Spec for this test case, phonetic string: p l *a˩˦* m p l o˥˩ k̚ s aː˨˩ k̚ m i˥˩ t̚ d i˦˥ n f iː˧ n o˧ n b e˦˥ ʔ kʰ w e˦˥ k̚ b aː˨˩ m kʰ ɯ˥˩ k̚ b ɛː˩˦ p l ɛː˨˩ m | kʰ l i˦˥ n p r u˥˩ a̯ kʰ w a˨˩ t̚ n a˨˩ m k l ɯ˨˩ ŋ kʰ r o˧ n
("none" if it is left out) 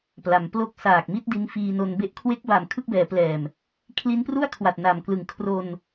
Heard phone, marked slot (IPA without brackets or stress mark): a˩˦